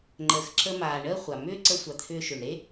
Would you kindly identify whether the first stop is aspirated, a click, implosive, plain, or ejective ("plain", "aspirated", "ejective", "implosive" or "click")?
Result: click